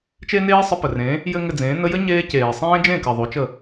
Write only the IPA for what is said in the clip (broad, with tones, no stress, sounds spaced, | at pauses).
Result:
t͡ʃ e˦ n eː˦ sˤ ə˧ p ə˨ r ẽː˨˦ | j ɘ˦ ŋ ɘ˧ d͡z ẽː˨˦ n ə˧ j ɘ˦ ɲ eː˦ c eː˨ sˤ ẽː˦ d͡ʒ ẽ˦˨ k ɘ˨ ðˤ o˨˦ t͡ʃ ə˦˨